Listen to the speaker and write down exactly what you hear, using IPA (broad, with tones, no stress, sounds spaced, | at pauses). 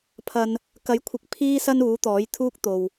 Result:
pʰ ɐ˨ n | k ɐ˨˥ j kʷʰ ɪ˨˥ k̚ pʰ iː˥ s ɐ˥ n uː˨˥ t̪ ɔː˨˥ j t̪ʰ uː˥ k̚ t̪ o˨ w